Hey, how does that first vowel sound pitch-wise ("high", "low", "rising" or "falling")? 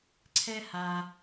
high